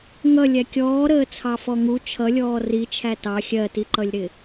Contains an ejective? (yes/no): no